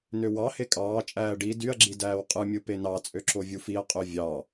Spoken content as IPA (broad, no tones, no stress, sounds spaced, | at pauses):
n ø w ɑ h e kʼ ɑː t͡ʃʼ æː ɖ i d y ɐ̯ ɡ͡ǁ i d æː w qʼ ɯ mʲ ɯ p e n ɑ t͡sʼ ø ǁ o vʲ u f i ɐ̯ qʼ ø vʲ ɑ